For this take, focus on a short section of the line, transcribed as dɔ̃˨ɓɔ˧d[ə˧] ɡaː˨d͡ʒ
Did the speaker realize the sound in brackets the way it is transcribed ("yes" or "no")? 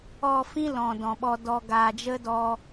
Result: no